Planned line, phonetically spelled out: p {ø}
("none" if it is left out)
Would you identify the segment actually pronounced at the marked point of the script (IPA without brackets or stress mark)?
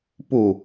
u